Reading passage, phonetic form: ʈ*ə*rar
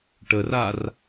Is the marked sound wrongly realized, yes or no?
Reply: no